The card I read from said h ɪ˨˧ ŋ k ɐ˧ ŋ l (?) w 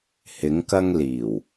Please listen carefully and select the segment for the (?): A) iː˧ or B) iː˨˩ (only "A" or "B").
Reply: B